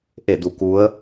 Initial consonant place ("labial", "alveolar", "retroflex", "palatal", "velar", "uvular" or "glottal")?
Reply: glottal